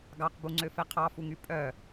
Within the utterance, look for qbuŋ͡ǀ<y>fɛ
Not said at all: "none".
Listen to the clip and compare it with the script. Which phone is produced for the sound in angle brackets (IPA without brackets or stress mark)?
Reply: ø